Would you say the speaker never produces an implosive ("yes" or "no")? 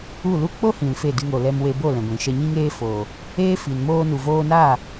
yes